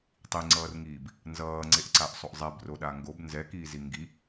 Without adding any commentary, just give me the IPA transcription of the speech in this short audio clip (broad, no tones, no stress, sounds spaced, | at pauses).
tˤ i ŋ͡ǀ ʌː r ŋ iː b | n z ʌː ŋ͡ǀ e ʔ ǀ a ʔ sˤ o ʔ zˤ ɛ b r o ɗ a ŋ ɡ o b n z ɛ k iː z i ŋ ɡ i